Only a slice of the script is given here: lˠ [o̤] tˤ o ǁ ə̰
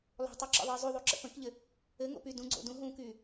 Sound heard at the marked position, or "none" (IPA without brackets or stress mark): o̤